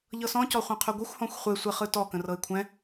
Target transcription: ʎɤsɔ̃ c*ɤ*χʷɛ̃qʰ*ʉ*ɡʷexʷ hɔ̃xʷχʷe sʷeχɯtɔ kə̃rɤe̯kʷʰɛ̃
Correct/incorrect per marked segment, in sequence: incorrect: ɔ, correct

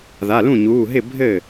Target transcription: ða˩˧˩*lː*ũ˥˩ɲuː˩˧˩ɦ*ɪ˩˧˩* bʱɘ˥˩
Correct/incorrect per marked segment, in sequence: incorrect: l, incorrect: ɪ˥˩

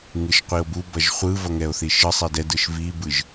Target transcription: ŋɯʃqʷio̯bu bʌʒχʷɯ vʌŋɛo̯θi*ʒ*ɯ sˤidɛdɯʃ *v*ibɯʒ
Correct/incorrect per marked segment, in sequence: incorrect: ʃ, correct

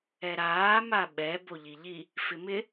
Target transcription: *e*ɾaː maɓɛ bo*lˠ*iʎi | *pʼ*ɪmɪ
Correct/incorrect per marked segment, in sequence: incorrect: ɛ, incorrect: ʎ, incorrect: f

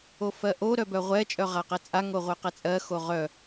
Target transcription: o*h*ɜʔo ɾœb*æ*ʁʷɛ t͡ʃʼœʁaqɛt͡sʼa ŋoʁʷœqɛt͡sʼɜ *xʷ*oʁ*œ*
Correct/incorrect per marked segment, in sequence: incorrect: f, incorrect: œ, incorrect: x, correct

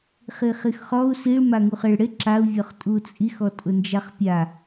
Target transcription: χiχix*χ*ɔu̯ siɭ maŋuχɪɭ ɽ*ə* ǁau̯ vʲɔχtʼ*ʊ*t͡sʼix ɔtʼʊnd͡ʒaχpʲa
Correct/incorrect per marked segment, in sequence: correct, incorrect: ɪ, incorrect: u

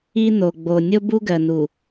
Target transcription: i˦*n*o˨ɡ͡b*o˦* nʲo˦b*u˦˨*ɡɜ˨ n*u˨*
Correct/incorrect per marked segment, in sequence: correct, incorrect: o˨, incorrect: u˦, correct

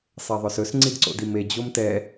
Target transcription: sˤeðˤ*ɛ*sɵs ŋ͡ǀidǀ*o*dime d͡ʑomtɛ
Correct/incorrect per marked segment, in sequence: incorrect: œ, incorrect: o̰

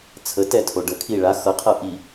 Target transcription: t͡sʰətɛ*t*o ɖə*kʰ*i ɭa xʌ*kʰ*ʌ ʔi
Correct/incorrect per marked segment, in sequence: incorrect: tʰ, correct, incorrect: qʰ

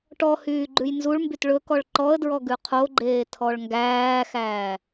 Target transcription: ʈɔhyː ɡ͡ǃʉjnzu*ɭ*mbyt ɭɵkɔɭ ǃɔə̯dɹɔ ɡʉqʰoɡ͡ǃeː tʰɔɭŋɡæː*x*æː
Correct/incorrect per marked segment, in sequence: correct, correct

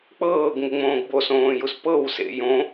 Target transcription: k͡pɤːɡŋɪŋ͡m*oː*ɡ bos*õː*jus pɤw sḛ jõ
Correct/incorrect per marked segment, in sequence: incorrect: õː, correct

